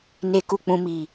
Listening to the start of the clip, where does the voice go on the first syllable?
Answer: low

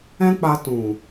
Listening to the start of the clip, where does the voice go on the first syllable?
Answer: high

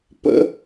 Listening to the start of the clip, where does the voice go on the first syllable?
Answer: high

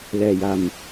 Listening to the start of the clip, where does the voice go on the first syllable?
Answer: low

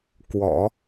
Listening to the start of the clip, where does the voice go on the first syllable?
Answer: low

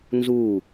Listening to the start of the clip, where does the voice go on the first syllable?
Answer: falling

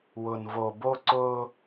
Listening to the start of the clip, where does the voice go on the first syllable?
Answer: low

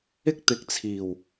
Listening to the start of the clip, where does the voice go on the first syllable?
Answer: high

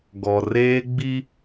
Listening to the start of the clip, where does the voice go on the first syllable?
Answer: low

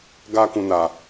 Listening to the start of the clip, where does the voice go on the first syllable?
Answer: high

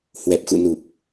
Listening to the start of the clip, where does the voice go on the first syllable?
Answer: low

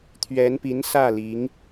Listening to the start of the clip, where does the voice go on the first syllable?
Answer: rising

